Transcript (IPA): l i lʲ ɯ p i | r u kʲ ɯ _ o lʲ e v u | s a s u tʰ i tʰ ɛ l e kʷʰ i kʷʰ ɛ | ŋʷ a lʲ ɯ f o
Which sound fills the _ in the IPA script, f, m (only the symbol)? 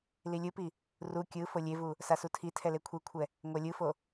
f